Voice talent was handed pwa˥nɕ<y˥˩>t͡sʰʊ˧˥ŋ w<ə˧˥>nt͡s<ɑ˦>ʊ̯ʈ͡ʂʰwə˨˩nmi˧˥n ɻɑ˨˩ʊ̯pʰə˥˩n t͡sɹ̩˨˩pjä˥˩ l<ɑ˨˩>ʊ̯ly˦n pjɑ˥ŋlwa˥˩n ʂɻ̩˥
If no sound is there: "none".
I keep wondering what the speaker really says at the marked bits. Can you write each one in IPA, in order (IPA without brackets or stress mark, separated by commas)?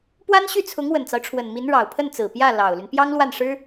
y˥˩, ə˨˩, ɑ˦, ɑ˨˩